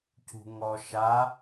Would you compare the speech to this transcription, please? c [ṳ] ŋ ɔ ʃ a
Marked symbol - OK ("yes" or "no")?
yes